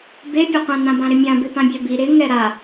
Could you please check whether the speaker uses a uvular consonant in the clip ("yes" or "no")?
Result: yes